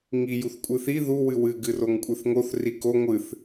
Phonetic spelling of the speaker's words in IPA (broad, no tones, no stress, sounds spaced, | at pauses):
ŋ i j u θ kʷʼ ɨ θ i ð u w ɨ w ɨ ɡ ɨ r o ŋ kʷʼ ɨ θ ŋ o θ r i k o ŋʷ ɨ θ